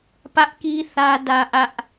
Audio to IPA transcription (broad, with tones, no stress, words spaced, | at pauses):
pä˦ʔki˦ θä˦dä˦ʔä˦ʔ